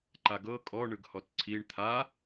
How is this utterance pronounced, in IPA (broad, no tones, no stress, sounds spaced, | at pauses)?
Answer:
ǃ a ɡ ɤ kʼ ɔ ɳ ɯ ɡ h ɔ t ǀʰ i ɳ t̪ʰ a